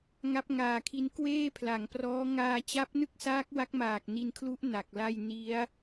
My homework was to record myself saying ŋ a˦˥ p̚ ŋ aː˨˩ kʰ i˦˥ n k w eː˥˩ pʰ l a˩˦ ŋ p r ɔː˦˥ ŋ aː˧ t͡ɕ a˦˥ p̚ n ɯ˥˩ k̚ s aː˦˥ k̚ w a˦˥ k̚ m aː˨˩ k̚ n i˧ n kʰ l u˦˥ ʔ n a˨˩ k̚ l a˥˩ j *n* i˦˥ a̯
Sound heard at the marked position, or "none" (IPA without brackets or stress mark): n